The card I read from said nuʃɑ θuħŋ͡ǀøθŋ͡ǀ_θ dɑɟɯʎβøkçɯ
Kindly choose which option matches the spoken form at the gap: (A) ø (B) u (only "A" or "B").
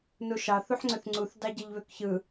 B